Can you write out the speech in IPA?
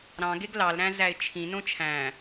ɾɑ̃ ɡeɡlɑlɾæ̃ zæɪ̯t͡ʃʰĩnõ t͡ʃʰæ̃

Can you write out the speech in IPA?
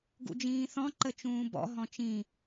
ɡṵd͡ʒĩːθɔ̃ ǃət͡ʃũːbɔ̰ ɦɔ̃t͡ʃĩ

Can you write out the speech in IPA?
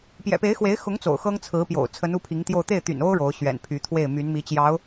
pjɛ̰˨˩pe˧˥ɪ̯xwe˧˥ɪ̯xʊ˧˥ŋ t͡so̰˨˩ʊ̯xɤ˥ŋt͡sʰɹ̩˧˥pjo̰˨˩ʊ̯ t͡sʰə˧˥nu˥˩pʰi˧˥ŋt̪jo˥˧ʊ̯ t̪e˥˩ɪ̯t̪y̰˨˩no˥ʊ̯ ɻo˧˥ʊ̯ ɕɥɛ̰˨˩npʰy˧˥ t̪ʰwe˥˩ɪ̯my˧˥nmi˧˥t͡ɕjɑ˧˥ʊ̯

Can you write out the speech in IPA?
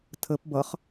tʰəp bʌχ

